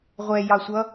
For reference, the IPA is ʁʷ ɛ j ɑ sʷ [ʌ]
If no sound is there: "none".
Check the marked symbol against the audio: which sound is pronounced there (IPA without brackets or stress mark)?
ʌ